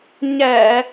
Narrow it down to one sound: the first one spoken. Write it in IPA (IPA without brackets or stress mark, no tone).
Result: ɲ